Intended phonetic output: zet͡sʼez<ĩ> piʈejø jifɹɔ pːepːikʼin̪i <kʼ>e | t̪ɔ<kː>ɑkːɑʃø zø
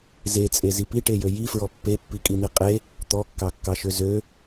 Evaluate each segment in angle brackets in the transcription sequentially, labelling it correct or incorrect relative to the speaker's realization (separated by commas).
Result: incorrect, incorrect, correct